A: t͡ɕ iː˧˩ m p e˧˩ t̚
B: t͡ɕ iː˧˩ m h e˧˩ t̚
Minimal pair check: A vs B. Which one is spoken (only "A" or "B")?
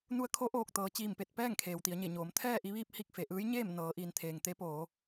A